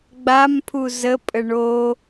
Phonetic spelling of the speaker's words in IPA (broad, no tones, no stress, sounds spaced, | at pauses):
ɡ͡b a m pʰ u z ə pʼ ə ɳ o